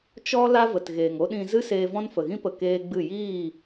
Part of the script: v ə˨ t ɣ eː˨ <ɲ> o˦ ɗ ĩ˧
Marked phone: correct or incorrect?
incorrect: ŋ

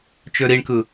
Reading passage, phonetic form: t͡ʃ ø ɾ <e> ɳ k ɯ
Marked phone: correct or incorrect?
incorrect: i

